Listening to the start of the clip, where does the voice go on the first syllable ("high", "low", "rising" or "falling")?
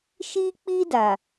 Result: high